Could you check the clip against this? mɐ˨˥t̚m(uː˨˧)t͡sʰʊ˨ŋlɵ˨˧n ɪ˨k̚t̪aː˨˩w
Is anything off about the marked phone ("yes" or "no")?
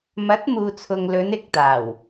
yes